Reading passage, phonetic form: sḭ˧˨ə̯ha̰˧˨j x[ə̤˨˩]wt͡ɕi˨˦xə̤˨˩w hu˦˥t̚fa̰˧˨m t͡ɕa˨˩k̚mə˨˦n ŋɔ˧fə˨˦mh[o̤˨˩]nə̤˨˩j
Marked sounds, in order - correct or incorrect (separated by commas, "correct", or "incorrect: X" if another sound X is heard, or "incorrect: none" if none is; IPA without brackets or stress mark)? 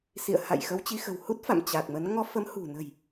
incorrect: ə˨˦, incorrect: ṳ˨˩